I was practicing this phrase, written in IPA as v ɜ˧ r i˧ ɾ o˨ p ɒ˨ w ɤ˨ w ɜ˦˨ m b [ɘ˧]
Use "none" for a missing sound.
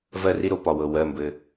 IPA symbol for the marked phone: ɘ˧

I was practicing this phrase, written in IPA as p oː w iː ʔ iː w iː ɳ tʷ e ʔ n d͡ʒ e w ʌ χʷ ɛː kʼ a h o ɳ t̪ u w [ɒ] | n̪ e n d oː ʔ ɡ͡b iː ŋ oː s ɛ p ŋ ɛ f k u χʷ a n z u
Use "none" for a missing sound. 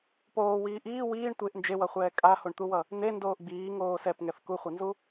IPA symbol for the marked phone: ʌ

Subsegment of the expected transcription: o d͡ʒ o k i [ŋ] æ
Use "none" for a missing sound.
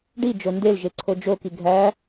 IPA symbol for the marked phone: ɡʱ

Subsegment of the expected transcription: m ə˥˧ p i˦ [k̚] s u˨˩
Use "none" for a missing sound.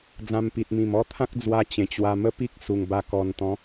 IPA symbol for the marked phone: k̚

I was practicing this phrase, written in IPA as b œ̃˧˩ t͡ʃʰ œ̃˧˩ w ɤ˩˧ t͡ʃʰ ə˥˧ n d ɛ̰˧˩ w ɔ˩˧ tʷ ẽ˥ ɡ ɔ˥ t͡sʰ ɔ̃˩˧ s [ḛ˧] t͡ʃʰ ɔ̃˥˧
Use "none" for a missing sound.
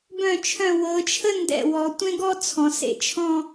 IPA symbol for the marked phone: ḛ˧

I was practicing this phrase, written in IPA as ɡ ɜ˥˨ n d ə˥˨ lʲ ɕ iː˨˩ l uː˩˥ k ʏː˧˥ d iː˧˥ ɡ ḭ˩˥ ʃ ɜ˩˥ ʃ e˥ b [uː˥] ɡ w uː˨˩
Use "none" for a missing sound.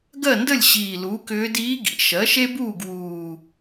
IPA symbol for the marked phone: uː˥˨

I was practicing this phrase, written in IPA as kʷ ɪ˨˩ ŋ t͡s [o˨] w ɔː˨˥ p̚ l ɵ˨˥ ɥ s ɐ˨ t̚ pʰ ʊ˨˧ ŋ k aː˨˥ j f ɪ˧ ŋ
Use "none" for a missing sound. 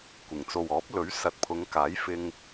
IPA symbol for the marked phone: o˨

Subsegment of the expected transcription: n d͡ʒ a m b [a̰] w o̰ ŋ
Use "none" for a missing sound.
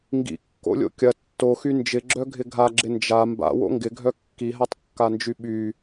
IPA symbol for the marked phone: a̰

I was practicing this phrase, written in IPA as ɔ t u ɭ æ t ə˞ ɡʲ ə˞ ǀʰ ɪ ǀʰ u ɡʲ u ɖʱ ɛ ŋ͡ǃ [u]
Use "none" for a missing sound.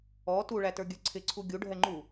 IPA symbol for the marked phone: u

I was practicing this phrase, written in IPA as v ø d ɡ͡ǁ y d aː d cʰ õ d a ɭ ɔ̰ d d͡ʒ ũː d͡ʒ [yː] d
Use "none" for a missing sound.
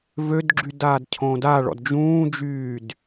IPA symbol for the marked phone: yː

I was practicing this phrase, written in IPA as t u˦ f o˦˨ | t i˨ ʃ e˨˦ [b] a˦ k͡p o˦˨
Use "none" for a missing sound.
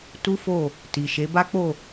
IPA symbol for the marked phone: b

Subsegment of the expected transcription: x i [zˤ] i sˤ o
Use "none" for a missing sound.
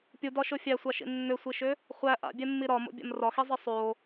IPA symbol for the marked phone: zˤ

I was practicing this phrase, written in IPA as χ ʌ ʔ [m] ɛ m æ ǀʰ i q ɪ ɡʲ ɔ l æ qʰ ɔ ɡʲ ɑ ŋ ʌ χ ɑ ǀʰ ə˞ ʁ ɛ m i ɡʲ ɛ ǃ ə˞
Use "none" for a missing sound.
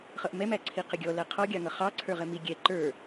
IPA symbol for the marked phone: m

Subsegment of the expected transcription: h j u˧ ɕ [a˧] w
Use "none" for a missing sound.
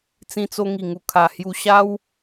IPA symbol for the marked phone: a˦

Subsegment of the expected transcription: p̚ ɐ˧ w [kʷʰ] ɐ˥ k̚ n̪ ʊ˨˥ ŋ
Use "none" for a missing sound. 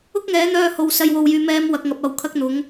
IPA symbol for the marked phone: kʰ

